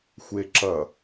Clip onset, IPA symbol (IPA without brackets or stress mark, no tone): xʷ